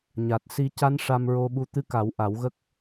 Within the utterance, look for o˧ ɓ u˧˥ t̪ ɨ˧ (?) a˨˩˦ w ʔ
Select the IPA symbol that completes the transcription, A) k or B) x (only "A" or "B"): A